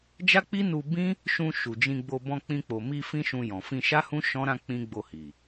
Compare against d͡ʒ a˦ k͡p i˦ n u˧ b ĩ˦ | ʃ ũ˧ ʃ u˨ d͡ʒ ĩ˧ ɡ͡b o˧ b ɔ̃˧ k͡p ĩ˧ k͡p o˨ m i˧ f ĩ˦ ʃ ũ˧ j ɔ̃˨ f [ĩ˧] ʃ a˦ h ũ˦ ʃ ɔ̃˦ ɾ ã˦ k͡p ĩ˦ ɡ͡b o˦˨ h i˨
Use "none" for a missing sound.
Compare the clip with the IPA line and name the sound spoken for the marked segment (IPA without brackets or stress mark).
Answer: ĩ˧